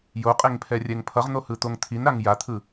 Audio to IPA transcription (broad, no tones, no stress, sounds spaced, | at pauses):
j o qʼ e ŋ pʰ ɛ rʲ ɛ ŋ pʰ ʌ ʁ n̪ o h ɯ t̪ o ŋ t̪ʰ i n ɾ a ŋ j a t̪ʰ ɯ